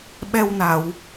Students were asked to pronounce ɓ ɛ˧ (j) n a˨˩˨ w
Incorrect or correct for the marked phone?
incorrect: w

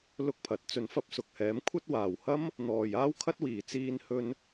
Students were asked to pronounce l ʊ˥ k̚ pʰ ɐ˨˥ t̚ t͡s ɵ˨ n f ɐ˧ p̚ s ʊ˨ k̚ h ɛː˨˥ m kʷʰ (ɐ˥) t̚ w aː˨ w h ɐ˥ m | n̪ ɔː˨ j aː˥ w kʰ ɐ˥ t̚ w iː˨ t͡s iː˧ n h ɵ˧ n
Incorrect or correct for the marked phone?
correct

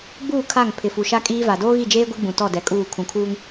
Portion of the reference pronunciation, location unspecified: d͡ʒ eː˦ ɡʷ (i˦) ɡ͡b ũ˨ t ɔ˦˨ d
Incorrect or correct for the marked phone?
correct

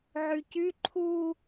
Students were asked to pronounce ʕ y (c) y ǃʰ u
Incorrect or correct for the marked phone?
correct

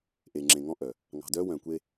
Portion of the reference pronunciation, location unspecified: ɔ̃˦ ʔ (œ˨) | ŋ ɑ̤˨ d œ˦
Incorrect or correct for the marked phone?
correct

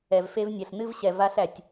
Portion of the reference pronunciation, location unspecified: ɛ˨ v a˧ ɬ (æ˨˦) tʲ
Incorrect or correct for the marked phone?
incorrect: æ˨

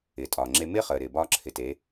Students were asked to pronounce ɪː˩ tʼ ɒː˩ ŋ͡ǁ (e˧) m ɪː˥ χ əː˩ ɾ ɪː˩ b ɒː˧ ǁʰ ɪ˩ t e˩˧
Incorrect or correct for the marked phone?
correct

